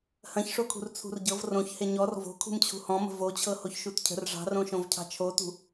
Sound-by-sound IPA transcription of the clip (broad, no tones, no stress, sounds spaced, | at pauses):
h ɐ̃ ç ʂ o kʰ ṳ r t͡sʰ ṳ r ɟ ɤ v r õ ç h e ɲ ɔ r v o̤ kʰ ṳ m t͡ɕʰ ṳ h ɔ̃ m ə̤ v o t͡ɕʰ ɤ h o ç ʃ u t cʰ ə̤ r ʐ ɑ̤ r õ ʃ õ v cʰ ɑ̤ t͡ʃʰ o t ṳ